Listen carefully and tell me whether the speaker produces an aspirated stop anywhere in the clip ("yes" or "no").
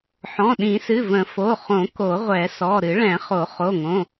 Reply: no